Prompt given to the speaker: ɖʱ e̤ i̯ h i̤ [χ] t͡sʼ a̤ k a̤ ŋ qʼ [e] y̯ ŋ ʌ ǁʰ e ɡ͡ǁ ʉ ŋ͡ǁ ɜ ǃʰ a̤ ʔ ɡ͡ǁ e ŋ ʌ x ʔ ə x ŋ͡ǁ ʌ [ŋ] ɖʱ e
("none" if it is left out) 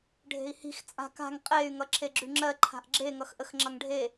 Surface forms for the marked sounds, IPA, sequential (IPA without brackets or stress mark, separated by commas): x, e, ŋ